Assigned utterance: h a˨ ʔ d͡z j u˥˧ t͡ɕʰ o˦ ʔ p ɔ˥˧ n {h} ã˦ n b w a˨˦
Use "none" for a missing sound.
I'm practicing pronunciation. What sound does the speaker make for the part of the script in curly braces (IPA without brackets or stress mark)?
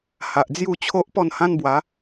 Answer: h